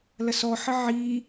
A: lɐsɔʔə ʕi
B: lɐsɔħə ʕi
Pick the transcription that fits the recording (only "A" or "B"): B